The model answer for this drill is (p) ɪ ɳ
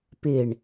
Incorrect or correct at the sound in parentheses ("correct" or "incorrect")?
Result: correct